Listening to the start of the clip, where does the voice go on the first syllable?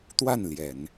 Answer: falling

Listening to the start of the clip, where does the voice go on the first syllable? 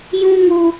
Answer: high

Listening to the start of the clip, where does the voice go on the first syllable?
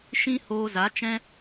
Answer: high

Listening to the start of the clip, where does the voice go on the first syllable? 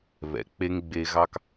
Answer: low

